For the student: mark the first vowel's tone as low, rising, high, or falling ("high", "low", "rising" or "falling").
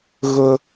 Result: high